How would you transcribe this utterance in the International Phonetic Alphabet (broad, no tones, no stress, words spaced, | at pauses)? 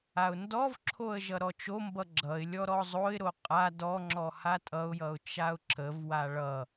aʊ̯ndɔvǁʰoə̯ ʒʌɾɔt͡ʃombʌ ɡ͡ǁʌɪ̯ lʲɔɾɔzˤoɪ̯ɾo qʼa dɔŋ͡ǁɔ hatʼʌʊ̯jʌʊ̯ t͡ʃaʊ̯ǁəvwa ɭʌ